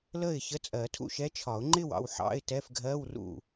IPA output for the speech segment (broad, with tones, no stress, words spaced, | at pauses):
lə˥˩ɪ̯çə˧˥˧ t͡sʼɜ˨˩˦tʰṵ˥˩ʃɛ˧˥t͡ʃʰɒ˨˩˦ʊ̯ ŋ͡ǃɪ˥˩wɑ̰˥˩w ħɑ̰˧˥˧ɪ̯tɛ˧˥˧fɡʱɜ˧˥˧wrṵ˥˩